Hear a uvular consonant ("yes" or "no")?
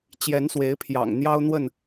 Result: no